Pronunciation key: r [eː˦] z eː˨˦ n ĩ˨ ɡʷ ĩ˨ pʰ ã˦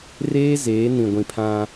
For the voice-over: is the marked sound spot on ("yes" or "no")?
yes